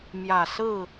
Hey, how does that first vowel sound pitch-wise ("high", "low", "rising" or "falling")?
low